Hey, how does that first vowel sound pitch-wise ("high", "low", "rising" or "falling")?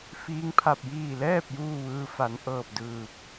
rising